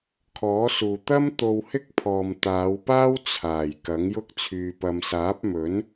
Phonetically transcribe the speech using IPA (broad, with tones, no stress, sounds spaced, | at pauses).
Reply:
kʰ ɔː˨˥ s uː˨ t̪ ɐ˥ m t̪ o˧ w h ɪ˥ k̚ pʰ ɔː˨ m t̪ aː˨˧ w p aː˥ w t͡sʰ aː˨˩ j k ɐ˨˥ ŋ j ʊ˥ k̚ t͡sʰ yː˧ p ɐ˧ m s aː˨˥ p̚ m ɵ˨˥ n